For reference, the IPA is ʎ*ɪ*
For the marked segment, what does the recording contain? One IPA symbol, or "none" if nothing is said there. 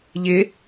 ɪ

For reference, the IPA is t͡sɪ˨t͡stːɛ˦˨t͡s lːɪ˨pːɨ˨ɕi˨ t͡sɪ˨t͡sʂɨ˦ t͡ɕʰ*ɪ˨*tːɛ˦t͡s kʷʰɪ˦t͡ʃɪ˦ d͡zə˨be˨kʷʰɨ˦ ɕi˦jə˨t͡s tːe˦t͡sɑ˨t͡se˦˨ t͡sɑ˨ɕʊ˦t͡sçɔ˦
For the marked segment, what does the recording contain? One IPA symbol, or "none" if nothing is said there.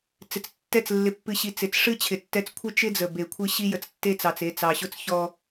ɪ˨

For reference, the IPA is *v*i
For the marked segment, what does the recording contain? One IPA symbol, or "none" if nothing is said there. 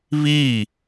β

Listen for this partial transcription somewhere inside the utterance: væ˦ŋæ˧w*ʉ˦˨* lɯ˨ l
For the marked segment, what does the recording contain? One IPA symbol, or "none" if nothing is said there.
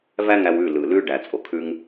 ʉ˦˨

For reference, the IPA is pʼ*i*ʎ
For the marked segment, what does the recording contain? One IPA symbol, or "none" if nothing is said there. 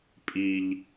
i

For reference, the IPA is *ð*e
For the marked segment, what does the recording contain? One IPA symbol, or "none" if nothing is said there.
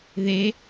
ð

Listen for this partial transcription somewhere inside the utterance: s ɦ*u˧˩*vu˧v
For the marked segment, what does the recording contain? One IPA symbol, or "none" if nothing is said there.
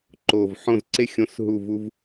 u˧˩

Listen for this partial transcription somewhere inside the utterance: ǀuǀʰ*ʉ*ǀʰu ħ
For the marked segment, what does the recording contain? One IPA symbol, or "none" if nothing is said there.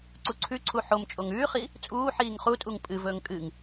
ʉ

